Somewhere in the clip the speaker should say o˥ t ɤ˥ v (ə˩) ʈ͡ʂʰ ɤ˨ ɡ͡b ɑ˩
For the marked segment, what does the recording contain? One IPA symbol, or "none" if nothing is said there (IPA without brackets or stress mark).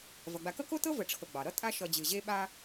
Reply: ə˨